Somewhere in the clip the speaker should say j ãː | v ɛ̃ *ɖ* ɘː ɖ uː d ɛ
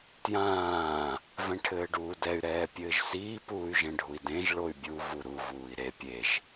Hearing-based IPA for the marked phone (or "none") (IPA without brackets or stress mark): ʈʰ